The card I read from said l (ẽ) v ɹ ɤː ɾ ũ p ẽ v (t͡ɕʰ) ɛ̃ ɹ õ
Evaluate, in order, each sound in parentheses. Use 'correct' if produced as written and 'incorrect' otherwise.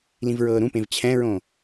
incorrect, correct

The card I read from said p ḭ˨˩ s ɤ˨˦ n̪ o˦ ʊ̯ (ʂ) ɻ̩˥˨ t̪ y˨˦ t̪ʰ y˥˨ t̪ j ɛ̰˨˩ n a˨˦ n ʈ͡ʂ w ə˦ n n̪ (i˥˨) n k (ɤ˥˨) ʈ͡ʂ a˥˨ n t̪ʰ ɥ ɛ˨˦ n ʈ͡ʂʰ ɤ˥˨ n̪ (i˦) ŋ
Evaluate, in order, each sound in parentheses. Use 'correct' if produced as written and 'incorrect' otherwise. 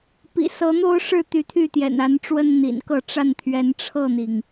correct, incorrect, correct, incorrect

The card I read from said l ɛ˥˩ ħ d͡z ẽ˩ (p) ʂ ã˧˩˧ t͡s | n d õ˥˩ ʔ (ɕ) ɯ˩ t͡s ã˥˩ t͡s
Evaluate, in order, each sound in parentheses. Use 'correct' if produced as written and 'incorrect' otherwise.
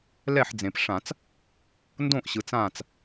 correct, correct

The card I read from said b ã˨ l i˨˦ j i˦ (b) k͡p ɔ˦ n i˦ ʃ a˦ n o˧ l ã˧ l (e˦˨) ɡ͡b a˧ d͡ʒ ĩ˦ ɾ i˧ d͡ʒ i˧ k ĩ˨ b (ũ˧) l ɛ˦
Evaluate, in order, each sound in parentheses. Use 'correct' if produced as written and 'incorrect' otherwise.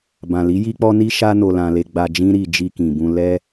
incorrect, incorrect, correct

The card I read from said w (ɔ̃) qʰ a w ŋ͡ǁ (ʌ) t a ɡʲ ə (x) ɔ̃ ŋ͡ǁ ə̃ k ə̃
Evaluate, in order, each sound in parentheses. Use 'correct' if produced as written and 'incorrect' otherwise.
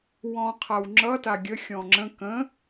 correct, correct, incorrect

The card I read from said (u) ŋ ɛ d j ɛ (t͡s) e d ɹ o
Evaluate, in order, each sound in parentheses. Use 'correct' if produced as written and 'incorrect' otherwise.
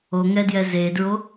incorrect, incorrect

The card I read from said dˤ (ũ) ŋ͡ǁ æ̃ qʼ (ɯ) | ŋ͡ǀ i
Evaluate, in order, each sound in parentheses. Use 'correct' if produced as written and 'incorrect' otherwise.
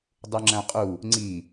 incorrect, incorrect

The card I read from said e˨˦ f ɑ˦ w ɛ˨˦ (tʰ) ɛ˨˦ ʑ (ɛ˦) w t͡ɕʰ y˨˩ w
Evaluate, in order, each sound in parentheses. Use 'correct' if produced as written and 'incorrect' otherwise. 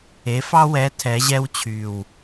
correct, correct

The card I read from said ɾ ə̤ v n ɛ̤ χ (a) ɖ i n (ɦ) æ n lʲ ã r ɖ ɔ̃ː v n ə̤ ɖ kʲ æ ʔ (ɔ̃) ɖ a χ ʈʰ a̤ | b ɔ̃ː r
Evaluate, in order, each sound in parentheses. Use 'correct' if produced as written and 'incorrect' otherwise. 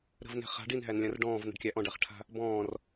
incorrect, correct, correct

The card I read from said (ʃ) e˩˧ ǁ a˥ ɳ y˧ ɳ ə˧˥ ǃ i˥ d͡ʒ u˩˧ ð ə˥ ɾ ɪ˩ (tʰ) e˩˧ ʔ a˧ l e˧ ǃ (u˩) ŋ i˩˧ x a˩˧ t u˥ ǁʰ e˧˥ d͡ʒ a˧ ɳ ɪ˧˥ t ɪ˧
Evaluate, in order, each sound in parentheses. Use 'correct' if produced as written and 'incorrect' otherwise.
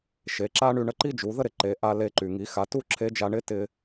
correct, incorrect, incorrect

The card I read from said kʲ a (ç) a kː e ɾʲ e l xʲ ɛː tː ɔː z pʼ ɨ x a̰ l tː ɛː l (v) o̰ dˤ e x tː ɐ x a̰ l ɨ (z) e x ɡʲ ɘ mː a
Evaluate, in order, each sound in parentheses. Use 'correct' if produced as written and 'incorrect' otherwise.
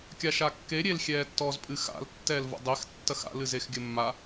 incorrect, correct, correct

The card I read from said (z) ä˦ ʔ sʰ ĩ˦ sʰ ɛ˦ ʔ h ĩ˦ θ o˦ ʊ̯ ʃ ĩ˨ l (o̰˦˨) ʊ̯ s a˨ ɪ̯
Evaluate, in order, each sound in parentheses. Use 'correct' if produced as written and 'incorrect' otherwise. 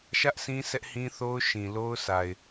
incorrect, incorrect

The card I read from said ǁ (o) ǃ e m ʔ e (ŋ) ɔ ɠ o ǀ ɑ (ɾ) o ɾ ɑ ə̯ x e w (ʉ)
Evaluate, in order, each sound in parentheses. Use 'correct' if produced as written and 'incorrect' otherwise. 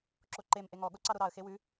correct, correct, correct, correct

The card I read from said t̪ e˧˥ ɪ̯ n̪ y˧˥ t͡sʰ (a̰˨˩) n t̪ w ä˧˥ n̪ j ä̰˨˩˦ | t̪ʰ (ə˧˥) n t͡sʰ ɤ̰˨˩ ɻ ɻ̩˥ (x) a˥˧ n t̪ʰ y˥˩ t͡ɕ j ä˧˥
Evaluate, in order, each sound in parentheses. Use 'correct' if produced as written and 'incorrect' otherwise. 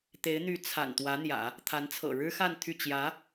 correct, incorrect, correct

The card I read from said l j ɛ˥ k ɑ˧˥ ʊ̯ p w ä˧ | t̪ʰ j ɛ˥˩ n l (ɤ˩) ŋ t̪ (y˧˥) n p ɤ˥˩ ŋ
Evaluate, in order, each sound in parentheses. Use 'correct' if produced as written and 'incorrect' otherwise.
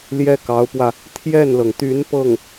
correct, correct

